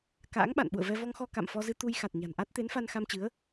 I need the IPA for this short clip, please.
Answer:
ka̰ː˧˥ŋɓa̰˧˨nɓṵ˧˨ə̯vɛ˧ vɔ˧ŋxɔ˧ ka̰˧˨mfɔ˧zɨ˧ t̪u˧j xa˨˩t̚ ɲa̤˨˩nʔa˦˥t̚ t̪e˨˦nfa˧nxa˧mt͡ɕɨ˨˦ə̯

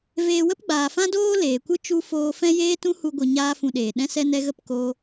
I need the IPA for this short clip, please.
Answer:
veː˧wə˦pɡ͡baː˨fã˦ doː˦leː˨kʷɨ˦ t͡ʃu˧ foː˧fɛ̃˦ jeː˦tũ˦hu˧ɡʷɨ˨ ɲaː˦fũ˧ɗeː˨ ɗɛ̃˧sɛ˧ nɛ˧ ɣə˦˨pkoː˧

